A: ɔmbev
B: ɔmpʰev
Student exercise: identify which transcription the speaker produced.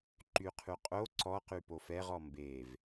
A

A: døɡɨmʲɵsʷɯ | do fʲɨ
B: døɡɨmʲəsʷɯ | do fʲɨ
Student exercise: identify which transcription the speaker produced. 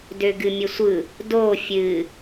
B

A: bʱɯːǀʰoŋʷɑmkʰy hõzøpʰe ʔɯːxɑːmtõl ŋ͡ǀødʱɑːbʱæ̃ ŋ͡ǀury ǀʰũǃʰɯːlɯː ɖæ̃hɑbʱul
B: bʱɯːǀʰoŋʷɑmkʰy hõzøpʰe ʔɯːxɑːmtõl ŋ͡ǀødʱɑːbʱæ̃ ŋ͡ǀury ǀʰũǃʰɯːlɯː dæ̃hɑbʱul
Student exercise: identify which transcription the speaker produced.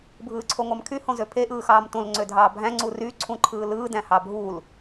B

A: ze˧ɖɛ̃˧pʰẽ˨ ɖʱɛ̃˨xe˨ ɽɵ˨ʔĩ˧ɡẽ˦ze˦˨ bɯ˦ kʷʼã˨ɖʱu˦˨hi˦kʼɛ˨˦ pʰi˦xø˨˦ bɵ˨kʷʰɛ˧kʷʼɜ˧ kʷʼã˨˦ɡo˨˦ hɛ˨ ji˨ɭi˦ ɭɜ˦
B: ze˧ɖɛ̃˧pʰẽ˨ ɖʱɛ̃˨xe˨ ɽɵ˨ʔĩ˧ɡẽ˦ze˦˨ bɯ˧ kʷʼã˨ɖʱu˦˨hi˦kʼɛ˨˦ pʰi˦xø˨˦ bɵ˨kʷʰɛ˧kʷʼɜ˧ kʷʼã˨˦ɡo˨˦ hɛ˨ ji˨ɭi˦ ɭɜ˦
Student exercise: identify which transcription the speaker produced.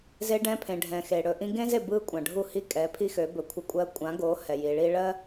A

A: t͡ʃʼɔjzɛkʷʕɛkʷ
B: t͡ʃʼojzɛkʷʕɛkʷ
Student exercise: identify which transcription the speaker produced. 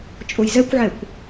B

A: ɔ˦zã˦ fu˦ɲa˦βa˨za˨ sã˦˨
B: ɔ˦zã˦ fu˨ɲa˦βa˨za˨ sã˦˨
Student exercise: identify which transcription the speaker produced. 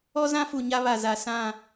B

